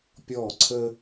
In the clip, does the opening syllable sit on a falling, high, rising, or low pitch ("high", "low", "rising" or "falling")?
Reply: falling